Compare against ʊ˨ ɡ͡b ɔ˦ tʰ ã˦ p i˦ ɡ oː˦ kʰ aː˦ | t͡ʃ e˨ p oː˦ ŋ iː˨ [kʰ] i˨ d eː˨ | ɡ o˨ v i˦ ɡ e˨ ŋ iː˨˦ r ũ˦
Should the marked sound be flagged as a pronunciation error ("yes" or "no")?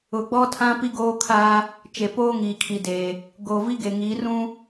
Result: no